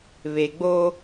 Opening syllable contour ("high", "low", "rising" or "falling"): low